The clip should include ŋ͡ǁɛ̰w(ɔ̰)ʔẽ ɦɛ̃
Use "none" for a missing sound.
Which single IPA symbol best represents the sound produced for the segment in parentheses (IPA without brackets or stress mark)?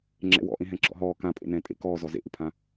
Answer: ɔ̰